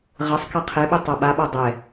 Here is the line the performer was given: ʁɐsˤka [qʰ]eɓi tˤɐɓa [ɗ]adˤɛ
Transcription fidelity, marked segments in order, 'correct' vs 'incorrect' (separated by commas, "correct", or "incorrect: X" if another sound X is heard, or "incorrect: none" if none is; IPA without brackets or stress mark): correct, incorrect: ɓ